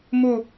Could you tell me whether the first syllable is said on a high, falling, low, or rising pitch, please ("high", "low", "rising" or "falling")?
falling